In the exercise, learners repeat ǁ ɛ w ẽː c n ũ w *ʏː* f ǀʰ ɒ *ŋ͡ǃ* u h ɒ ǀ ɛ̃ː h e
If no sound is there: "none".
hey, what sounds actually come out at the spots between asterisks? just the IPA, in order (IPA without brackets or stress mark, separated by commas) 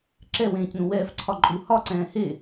ɛː, ǃʼ